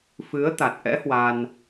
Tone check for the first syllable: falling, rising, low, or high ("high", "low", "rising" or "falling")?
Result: rising